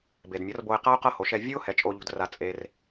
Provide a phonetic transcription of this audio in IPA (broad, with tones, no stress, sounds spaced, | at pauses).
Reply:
b e˩ d mʲ ɤ˩˥ r b o˧ ɪ̯ q a˥ ʊ̯ q ɤ˥ h o˩˥ ʃ ɛ˧ vʲ ɯ˥ ʊ̯ h ɛ˩˥ t͡ʃʼ o˧ ʎ ṳ˧ d r a˧ t͡sʼ e˧ r